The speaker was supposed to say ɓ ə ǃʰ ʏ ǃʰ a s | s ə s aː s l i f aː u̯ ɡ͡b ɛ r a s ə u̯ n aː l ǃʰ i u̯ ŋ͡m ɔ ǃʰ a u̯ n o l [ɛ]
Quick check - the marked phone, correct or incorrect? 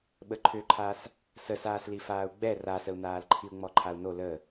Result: incorrect